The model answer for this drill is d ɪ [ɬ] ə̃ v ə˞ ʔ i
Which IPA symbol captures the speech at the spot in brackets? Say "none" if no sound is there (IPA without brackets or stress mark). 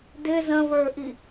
z